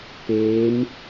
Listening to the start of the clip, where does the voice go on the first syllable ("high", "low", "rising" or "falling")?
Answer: rising